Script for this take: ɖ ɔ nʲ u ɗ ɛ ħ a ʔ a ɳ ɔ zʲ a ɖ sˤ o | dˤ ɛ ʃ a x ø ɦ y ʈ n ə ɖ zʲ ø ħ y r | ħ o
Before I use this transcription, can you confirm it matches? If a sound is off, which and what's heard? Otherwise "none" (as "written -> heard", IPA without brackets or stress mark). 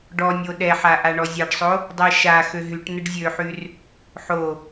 u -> o